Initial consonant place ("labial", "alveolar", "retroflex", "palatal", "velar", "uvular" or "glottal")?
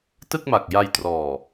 alveolar